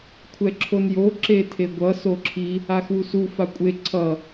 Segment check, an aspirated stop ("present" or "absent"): present